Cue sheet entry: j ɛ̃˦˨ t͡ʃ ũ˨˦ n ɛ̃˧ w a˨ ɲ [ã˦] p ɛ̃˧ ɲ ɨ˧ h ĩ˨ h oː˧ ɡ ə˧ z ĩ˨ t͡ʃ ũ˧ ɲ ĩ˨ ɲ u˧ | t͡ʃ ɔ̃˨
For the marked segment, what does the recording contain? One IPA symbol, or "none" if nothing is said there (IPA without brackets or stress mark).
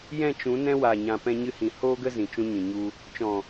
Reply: ã˨